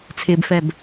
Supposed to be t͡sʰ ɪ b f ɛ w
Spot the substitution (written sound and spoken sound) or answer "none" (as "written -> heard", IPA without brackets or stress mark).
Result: w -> b